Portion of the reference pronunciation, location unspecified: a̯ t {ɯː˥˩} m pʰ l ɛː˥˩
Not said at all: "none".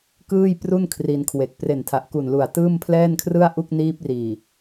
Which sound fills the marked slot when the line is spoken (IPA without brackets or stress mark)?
ɯː˥˩